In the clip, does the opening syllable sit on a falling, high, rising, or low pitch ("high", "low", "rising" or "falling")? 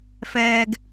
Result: low